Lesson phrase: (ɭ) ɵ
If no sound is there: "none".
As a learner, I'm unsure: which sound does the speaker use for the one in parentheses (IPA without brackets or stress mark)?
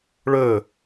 ɭ